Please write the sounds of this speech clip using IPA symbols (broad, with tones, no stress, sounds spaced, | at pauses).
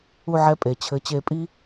u˧˩ ʕ ɛ˧˩ pʼ e˩ t͡ɕʰ ɘ˨˦ t͡ɕ e˨˦ pʼ i˦